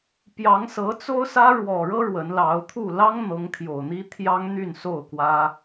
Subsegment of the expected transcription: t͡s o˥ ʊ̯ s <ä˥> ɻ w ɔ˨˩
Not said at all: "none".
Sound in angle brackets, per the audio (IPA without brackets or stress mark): ä˥